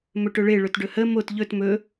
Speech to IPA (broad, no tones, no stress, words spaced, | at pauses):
mɵʈɵɭe ɭɵtɖɵhə mot ʎɵt mɵ